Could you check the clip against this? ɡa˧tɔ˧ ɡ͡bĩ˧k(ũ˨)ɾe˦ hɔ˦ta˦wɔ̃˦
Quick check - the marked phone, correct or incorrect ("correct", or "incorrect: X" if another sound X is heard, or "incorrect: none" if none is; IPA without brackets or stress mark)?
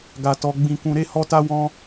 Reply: incorrect: ũ˧